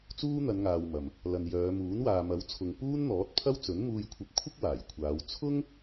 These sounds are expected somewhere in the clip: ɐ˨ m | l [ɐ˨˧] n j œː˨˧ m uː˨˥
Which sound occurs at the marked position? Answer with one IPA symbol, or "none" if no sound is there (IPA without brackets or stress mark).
ɐ˨